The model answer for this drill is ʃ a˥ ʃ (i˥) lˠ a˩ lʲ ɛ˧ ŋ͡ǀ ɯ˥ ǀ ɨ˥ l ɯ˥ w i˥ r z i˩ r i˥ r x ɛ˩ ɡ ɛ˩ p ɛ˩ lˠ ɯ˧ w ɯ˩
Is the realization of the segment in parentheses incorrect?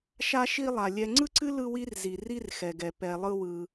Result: no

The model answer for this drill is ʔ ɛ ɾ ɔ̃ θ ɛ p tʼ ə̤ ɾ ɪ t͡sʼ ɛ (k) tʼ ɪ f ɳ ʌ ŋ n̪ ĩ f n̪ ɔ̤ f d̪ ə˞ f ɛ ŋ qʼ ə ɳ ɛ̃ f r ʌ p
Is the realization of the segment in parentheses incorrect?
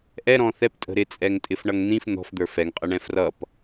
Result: yes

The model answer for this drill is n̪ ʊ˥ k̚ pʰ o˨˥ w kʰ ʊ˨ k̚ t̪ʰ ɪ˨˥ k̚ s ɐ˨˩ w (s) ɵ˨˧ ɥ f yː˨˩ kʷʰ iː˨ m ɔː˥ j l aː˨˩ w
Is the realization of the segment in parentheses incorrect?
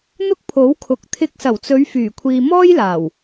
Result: yes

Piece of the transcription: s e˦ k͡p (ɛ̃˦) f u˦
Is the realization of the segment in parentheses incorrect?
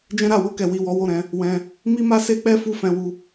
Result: yes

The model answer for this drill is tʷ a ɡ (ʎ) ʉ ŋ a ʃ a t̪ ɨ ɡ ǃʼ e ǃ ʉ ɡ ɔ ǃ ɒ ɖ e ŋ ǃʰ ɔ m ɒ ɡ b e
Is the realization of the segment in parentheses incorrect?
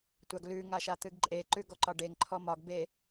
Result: yes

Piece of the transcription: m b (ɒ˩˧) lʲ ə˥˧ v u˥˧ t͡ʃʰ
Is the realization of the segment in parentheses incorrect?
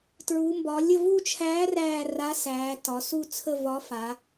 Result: no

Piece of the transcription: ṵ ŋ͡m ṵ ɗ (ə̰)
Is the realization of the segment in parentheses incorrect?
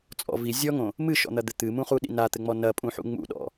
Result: yes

